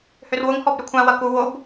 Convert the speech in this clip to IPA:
h ø r w ʊ ŋ h ɔ b ɾ ʏ kʷʰ ã w ɐ k u w o b

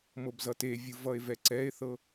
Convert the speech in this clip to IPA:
m ɤ b z ʌ t e vʲ ɯ v ʌ e̯ v ɛ ǀ ɛ e̯ θ ɤ

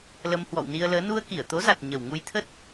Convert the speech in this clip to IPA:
l ə˧ m h w ɔ̰˧˨ w n i˧ ə̯ l əː˨˦ n u˧ ə̯ k i˧˩ ə̯ t̪ o˨˦ z a˨˩ t̚ ɲ ə˨˩ w ŋ u˧ j t̪ʰ ə˦˥ t̚

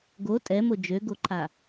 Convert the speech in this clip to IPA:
ɡ o tʼ ɛ m o d͡ʒ ø ɡ o ǃʰ a

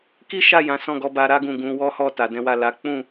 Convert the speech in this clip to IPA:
k i˦ ʃ a˦˨ j ã˨˦ s ɔ̃˦˨ ɡ ɔ˧ b a˧ ɾ a˦ ɡ ũ˦˨ ɡ ũ˧ w ɔ˦ h ɔ˦˨ t a˨ d ɛ̃˨˦ w a˦˨ l a˨˦ k͡p ũ˦˨

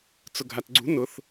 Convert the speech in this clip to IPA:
t͡s ʊ ɡʱ a t ɡ͡ǀ ṳ n ʊ θ

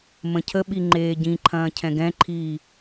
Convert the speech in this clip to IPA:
m ə̃ cʰ ə ɓ i ŋ͡ǃ eː ɟ ĩ ǃʰ ɐ̃ː cʰ ɛ̃ ɡ ɛ̃ ǃʰ iː

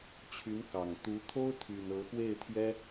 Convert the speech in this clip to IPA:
t͡ɕʰ y˧˥ n k ɑ˨˩ ŋ t̪ u˧˥ t̪ʰ o˥ ʊ̯ t̪ʰ y˨˩ n ɤ˧˥ x w e˥˩ ɪ̯ t̪ʰ j ɛ˥

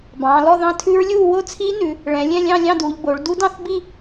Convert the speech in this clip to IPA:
b ɑ̃ː˩˧ l ɔ˥˧ ð ɑ̃˦˥ tʰ ʉ˦˥ ɹ lʲ uː˥˧ w o˥˧ t͡sʰ iː˦˥ n ʉ˩˧ | ɭ ɛ̃˩˧ lʲ ɛ̃˥˧ lʲ ɑ̃˥˧ lʲ ɑ̃˥˧ d uː˩˧ ʎ b o˩˧ ɭ d u˦˥ d ɑ̃˥˧ θ b i˥˧

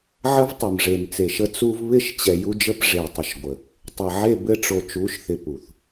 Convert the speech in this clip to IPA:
ʕ ə˦ v tˤ ɘ˨ m ʐ e˨ m t͡s e˨ ʃ ə˦ t͡s u˦ v β ɪ˦˨ ʃ t͡ɕ ɛ˨ j u˦ d͡ʒ ə˦ p ʐ e˨ tˤ ə˨ ʃ ɡʷ ə˨ | tˤ ə˨ ʕ e˦˨ b ɘ˦ ʈ͡ʂ o˨ t͡ʃ u˨˦ ʃ θ ɪ˨ p u˨ θ

